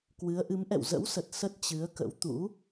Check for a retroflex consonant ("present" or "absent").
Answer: absent